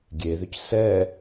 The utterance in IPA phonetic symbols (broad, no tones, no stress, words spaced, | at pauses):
ɡʲeðʏc sɛ